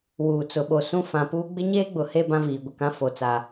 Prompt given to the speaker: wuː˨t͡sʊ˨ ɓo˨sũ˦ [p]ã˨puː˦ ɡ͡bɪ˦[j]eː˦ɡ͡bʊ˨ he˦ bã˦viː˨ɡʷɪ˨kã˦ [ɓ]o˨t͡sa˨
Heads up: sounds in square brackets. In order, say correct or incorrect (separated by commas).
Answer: incorrect, incorrect, incorrect